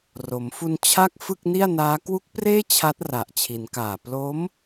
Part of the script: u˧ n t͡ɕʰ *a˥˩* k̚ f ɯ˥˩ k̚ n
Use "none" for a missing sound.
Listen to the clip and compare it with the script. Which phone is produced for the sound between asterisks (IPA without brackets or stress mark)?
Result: a˥˩